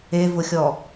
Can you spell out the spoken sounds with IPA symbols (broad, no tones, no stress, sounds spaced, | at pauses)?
e v ʊ xʲ ɔ